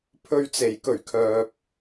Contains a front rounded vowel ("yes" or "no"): yes